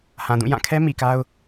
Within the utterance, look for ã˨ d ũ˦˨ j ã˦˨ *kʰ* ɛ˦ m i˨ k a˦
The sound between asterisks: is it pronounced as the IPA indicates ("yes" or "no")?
yes